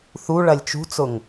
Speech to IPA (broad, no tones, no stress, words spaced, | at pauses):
θu ɭɐlʲt͡ʃṳt͡sʊŋ